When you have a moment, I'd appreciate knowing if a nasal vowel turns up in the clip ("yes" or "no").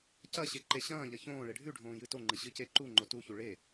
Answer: yes